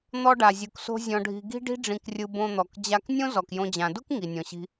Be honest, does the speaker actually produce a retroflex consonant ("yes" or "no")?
yes